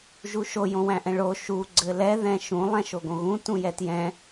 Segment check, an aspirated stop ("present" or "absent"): absent